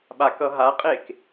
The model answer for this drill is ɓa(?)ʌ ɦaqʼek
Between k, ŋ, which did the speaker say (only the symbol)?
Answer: k